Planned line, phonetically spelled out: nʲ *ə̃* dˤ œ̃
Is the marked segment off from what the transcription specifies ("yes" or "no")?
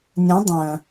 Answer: yes